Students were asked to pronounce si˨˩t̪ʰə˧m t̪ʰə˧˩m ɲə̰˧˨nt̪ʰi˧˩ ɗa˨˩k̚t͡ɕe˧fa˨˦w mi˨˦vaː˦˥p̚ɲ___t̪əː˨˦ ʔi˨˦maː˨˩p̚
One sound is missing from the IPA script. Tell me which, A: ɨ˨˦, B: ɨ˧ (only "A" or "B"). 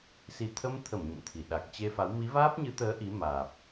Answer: A